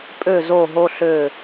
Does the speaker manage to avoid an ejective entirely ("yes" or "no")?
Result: no